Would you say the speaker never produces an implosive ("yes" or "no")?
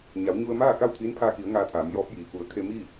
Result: yes